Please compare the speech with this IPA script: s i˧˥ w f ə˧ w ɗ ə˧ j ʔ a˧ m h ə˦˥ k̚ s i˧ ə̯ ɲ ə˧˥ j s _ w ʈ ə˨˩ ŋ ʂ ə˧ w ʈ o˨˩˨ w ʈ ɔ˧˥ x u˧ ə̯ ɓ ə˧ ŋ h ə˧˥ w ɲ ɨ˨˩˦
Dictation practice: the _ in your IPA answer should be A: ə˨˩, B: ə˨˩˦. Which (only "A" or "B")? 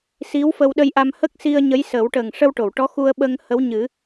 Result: B